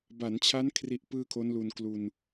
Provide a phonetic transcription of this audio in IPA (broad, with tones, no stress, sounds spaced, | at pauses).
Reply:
b a˩˦ n t͡ɕʰ a˦˥ n kʰ r i˦˥ ʔ p ɯː˥˩ kʰ o˦˥ n l u˧ n k l u˧ n